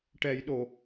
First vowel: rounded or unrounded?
unrounded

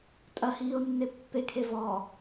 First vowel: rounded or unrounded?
unrounded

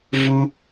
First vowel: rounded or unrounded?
rounded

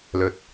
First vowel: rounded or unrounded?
rounded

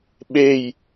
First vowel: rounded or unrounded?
unrounded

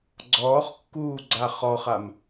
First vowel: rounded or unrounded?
rounded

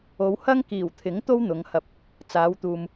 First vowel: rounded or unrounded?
rounded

